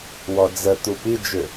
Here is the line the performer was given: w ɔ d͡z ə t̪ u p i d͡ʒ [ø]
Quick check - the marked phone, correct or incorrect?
correct